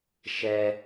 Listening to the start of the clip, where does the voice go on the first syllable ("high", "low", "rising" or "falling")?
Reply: high